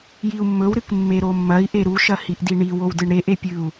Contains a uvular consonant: no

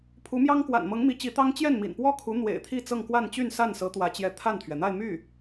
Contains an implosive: no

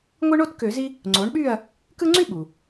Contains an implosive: yes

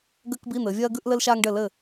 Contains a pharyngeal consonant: no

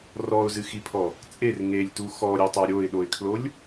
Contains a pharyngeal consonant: no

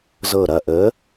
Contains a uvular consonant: no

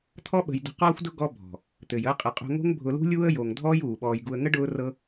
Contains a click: no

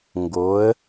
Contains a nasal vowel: no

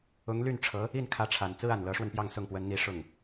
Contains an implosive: no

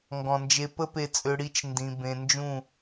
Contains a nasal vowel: yes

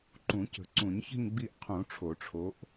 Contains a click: yes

